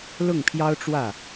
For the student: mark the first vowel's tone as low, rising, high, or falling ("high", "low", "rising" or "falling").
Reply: falling